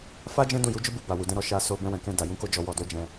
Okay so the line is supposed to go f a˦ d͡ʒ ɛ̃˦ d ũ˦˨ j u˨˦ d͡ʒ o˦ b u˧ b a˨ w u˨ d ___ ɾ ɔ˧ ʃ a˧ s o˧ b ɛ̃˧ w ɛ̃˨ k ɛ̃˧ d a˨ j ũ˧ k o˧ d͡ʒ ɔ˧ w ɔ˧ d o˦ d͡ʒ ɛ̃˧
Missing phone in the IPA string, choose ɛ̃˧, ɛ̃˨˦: ɛ̃˧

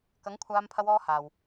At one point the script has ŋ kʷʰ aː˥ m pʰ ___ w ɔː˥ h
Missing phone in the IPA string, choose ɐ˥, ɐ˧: ɐ˥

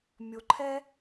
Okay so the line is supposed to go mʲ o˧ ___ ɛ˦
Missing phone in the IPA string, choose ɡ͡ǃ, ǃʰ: ǃʰ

